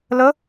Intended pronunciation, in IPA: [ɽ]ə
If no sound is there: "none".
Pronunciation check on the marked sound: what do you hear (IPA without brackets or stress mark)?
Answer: l